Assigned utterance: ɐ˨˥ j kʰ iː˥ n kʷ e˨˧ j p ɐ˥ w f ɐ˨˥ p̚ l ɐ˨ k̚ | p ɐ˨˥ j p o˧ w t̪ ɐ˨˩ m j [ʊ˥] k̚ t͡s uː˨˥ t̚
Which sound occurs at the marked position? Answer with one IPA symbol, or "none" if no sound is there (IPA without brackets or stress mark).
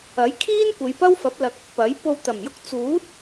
ʊ˥